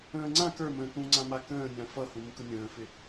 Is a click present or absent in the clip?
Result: present